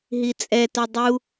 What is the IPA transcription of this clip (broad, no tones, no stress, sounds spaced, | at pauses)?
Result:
ɦ i t͡sʼ ɛ t œ dˤ u